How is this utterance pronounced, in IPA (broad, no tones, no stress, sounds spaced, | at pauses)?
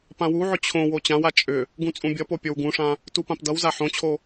p ã w u ʕ ʏ t͡ɕʰ õ w o t͡ɕ ã w a t͡ʃʼ ʏ | ɡ ũ t͡sʼ ũ bʲ ʌ p o pʲ o w ɡ ũ ʂ ã | t u p ã p d ʌ w z a ħ õ t͡ɕʰ o